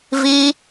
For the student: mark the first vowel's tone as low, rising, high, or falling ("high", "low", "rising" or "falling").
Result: high